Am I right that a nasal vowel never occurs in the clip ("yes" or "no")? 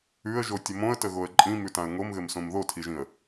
no